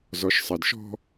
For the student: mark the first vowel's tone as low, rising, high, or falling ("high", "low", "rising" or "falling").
low